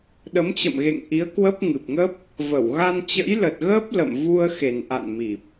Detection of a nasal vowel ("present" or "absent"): absent